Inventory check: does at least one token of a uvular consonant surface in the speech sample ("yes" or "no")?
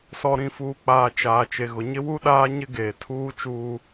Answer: no